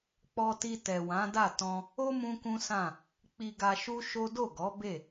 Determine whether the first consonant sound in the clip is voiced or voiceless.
voiceless